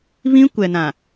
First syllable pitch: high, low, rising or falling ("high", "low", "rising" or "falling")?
high